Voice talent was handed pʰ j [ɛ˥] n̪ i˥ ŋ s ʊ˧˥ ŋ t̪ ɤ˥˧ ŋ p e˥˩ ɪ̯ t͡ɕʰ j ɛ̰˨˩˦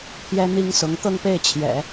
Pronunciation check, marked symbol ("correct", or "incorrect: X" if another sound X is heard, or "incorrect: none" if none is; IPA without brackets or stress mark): correct